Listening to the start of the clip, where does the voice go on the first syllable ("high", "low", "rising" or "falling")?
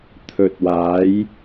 low